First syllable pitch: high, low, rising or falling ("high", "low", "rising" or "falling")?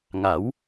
rising